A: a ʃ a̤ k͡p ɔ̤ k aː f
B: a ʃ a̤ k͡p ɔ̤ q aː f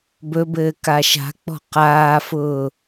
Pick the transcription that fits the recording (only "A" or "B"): B